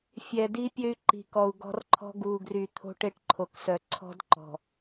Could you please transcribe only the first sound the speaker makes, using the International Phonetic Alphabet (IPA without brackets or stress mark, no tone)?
fʲ